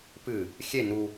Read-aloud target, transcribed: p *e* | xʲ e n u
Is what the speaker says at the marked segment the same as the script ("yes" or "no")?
no